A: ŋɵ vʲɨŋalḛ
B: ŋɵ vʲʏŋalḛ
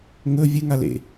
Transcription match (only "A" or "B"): A